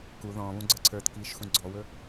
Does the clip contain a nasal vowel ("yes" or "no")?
yes